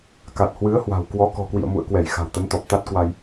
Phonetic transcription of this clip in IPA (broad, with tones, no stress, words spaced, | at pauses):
ka˨˩t̚hwɨ˨˦ə̯ hwa̤˨˩wkwɔ˨˦ kɔ̤˨˩kwḭ˧˨ə̯mṵ˧˨ə̯kwɛ˧˩j xa̤˨˩wt̪ə˨˦nt̪ɔ˨˩p̚ t̪a˦˥t̚kwa˧j